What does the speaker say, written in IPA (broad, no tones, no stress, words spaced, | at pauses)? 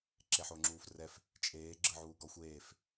ǁeħoŋ͡ǁuːfrɛf | t͡ʃʼeː ɡ͡ǁɯʕuːɡɔ xʷeːf